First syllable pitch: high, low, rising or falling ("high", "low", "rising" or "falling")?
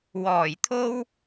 low